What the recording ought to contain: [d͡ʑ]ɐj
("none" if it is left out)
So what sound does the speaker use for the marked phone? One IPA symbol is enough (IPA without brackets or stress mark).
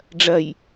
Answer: ɖ͡ʐ